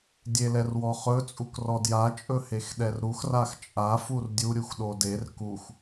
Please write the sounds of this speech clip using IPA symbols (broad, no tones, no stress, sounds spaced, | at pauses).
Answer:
dʲ e l ɛ r w ɔ χ ɵ t͡sʼ u k r ɔ d j a t͡ʃʼ ɵ h e x ɗ ɛ r ɾ u x r a x t͡ʃʼ a f u r dʲ u ɾʲ u x ɗ o d e r k u x